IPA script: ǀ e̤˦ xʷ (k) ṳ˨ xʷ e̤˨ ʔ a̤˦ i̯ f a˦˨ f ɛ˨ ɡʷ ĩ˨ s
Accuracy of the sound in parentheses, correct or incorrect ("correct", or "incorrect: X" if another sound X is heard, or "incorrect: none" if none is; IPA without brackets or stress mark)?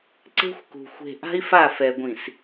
correct